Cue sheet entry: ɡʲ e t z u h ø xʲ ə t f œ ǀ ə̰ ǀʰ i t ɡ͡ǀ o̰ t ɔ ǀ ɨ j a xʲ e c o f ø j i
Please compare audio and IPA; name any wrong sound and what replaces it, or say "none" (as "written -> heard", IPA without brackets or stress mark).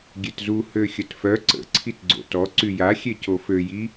ɨ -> y